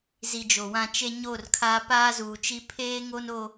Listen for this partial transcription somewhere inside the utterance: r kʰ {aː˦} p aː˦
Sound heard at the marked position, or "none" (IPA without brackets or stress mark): aː˦